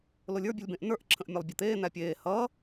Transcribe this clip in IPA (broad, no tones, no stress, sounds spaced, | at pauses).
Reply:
l o lʲ ə˞ bʲ ə lʲ b ẽ ʔ n ə˞ ʔ ǁʰ ə̃ ʔ mʲ a lˠ bʲ ʌ t̪ eː n̪ æ pʲ eː h ʌ